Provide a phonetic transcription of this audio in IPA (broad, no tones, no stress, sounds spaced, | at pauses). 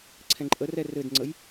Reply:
ǀʰ ɛ̃ ǃʼ ə r ɛ r ɘ d ŋ͡ǀ ə j